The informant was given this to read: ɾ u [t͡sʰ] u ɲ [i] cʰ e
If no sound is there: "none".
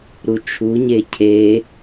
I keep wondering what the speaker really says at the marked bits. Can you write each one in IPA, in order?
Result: t͡ʃʰ, e

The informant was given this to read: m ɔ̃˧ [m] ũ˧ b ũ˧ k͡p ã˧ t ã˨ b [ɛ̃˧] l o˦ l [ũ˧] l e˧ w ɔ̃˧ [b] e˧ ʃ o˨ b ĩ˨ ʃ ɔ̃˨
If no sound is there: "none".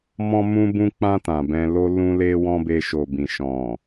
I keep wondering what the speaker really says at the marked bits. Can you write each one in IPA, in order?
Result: m, ɛ̃˧, ũ˧, b

